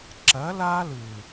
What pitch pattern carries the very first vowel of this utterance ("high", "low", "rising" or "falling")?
rising